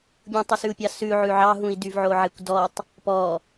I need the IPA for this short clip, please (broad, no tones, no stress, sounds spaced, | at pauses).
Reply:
bʲ ũ tˤ u s ʉ u̯ pʲ ɑ s ʉ ʕ ʉ ʕ ɑ ɦ ũ i̯ d y v ʕ o ʕ e kʷ d ɔ tˤ | p ɔ